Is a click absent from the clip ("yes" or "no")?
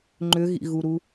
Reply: no